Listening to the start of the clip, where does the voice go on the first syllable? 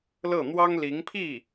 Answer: falling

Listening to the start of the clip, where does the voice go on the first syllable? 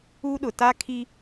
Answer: high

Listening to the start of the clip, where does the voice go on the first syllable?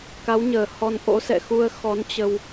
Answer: rising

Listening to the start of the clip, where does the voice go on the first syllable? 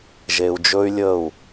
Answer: low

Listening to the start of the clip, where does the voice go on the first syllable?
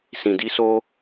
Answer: low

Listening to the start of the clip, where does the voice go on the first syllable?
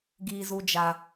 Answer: high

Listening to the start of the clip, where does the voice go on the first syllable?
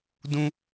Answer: high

